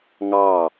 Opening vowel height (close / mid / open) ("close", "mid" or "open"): open